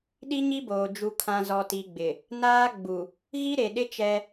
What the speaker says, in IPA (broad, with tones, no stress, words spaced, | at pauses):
ɗi˦ɲi˦boː˨ d͡ʒu˨kʰã˨ zɔ˨ti˨ɡ͡bɪ˨ | naː˦ɡ͡bu˨ | ɣi˦ɾe˨ɗɪ˦ t͡ʃɛ˦